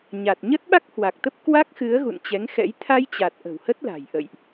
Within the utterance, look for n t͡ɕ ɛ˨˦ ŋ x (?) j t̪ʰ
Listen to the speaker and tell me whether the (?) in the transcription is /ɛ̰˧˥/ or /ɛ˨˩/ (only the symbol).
ɛ̰˧˥